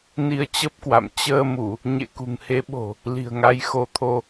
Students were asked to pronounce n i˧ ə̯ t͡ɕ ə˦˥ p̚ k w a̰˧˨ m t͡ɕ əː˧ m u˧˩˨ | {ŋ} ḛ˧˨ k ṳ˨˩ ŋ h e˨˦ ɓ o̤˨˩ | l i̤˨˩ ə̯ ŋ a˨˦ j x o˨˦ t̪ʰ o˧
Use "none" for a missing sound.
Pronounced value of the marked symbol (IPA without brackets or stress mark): ɲ